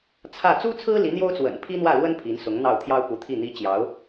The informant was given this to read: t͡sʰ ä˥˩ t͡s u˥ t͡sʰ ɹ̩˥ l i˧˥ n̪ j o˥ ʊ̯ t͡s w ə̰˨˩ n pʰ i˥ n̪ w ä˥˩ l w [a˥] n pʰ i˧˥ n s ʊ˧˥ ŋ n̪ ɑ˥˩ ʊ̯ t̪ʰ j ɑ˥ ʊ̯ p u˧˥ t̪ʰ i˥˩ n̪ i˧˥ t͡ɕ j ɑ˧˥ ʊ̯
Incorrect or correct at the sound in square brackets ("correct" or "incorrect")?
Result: incorrect